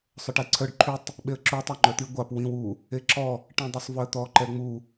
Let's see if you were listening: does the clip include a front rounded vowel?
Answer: yes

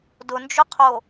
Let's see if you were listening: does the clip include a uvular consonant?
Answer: yes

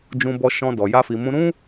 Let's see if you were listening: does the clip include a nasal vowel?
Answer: yes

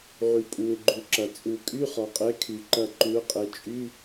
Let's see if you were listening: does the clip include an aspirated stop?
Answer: yes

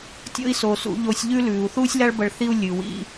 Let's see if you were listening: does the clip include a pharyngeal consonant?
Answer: no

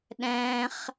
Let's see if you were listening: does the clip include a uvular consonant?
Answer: yes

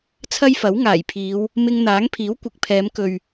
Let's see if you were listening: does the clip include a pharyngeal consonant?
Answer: no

